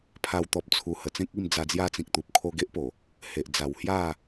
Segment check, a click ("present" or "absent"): absent